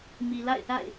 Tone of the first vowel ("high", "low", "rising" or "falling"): low